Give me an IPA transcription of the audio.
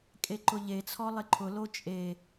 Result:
kʼeǃʊʎet͡sʰɔ lˠɪǃʰʊlo t͡ʃʼe

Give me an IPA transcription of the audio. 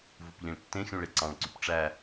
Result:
vupʎĩɭtːẽxʲũ ɭeǀɑ̃ɭǀyp ʈ͡ʂæ

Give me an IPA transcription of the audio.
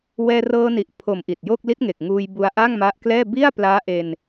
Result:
wɛː˧rɤː˧ni˨˩ʔpʰo˨˩m ʔi˨˩t̚jo˥˩k̚ li˦˥t̚ŋe˨˩k̚ ŋuː˧jbu˧a̯ ʔa˥˩ŋma˦˥ʔklɛː˥˩ bi˥˩a̯plaː˦˥ʔe˧n

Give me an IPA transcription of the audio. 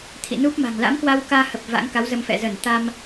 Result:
t̪ʰḭ˧˨nu˦˥p̚ma̤˨˩ŋ la̰˧˥mkwa˧wkaː˧ hə˨˩p̚ va̰˧˥ŋka˨˦wzə˧mfɛ̰˧˨ zə˧˩nt̪a˧m

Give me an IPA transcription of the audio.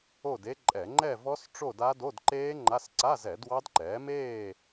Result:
o˥˨de˦˥ǃʼɛ˧˩˧ ŋ͡ǃɛ˥˨vɔ˦˥s ʈ͡ʂo˥˨da˦˥ do˧˥˧dǃeː˦˥ ŋ͡ǃa˧˥˧s ǀa˧˥˧zɛ˧˩˧ dwɑ˦˥dǃɛː˩˥ meː˥˨

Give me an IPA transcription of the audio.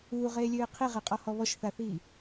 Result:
uːʁeːlʲøːɪ̯ qʰiʁeqʼɔhɔ βɔʃθaθiː

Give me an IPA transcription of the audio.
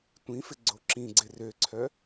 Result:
tʷĩfɪ ɡ͡ǀoǁĩɡ͡ǀɪ røǀʰœ

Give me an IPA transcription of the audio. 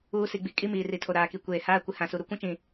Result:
uː˦ si˨ɡ͡bi˨kʼi˦ miː˨ri˨tʰo˨ ɾaː˨ki˨kʷeː˨ haː˦ kʷɪ˨ hã˨su˨ ɾu˦kʷũ˦t͡ʃĩ˨

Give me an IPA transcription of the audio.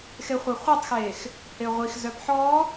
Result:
xeχʷaχʷœtˤxeːx | heʁʷixzœp ħɔ

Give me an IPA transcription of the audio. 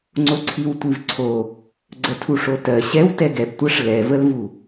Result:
ŋ͡ǀoǀʰiwtʷivǀʰo | ɡ͡ǀətʰuʂotɜ ɕɛw tɛɡɛbtʷɜʂ lɛvəlvu

